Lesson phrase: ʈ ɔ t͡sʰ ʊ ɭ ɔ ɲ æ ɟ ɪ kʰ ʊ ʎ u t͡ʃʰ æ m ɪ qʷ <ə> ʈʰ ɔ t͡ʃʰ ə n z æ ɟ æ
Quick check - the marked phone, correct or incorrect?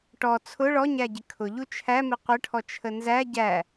correct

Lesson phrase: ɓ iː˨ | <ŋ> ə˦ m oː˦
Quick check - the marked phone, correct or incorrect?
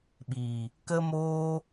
incorrect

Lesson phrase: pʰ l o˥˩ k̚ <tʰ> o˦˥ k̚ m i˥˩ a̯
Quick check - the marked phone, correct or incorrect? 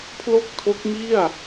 correct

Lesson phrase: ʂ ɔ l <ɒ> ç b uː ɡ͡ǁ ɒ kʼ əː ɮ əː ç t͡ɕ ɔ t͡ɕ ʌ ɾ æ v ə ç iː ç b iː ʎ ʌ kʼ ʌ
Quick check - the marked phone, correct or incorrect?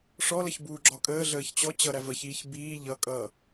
incorrect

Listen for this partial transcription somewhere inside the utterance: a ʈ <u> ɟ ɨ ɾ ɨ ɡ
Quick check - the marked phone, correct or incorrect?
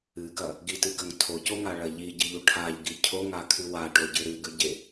incorrect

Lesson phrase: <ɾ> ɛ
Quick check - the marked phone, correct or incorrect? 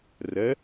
incorrect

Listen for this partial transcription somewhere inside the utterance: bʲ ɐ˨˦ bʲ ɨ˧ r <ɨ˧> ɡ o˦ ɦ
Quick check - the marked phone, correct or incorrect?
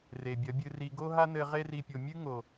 incorrect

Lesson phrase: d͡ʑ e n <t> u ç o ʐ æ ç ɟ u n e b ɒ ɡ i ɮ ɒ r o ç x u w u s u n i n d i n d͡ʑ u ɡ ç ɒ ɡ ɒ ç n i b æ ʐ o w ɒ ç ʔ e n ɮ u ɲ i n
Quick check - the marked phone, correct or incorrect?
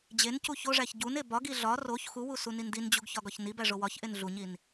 incorrect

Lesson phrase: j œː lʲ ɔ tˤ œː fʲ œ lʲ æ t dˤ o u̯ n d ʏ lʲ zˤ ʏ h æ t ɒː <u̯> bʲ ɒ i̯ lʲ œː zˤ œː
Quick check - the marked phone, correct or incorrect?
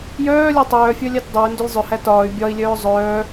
incorrect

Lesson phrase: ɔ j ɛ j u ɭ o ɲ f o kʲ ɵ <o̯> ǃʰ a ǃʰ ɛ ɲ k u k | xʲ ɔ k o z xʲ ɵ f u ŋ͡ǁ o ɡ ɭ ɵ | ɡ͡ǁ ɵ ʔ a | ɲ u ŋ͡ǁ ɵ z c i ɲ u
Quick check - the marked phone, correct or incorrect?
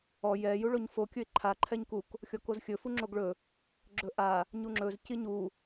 incorrect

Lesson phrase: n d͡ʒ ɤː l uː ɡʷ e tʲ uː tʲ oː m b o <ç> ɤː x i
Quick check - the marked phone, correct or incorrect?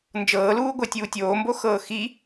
incorrect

